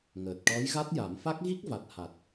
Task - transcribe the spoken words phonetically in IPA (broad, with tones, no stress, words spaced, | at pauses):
ŋəː˨˩t̚ ʈɔ˧˥jɣa˦˥t̚ja˨˩˦m fa˦˥k̚ɣi˦˥k̚va˨˩t̚ ha˨˩t̚